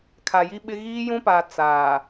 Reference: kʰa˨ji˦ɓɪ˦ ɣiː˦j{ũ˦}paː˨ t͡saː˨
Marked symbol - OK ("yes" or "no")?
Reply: yes